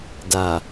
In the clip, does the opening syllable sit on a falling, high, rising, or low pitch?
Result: low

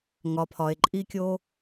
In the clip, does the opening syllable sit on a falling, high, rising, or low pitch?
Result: low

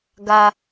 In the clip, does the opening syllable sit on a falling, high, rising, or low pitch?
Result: low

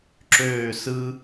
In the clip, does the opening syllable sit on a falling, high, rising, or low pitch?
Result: falling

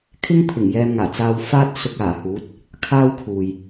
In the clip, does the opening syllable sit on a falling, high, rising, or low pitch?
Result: high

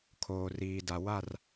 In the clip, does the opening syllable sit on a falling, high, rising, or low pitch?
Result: low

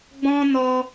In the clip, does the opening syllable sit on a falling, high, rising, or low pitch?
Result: high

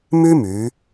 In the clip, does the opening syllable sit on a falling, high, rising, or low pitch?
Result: high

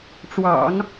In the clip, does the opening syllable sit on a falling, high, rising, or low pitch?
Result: low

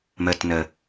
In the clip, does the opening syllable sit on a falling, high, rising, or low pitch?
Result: low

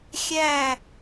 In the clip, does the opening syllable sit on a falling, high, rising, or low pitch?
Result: falling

